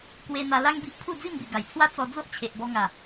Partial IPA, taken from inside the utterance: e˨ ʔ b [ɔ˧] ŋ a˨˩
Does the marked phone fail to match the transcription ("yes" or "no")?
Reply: no